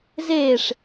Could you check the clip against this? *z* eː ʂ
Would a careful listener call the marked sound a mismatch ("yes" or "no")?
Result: no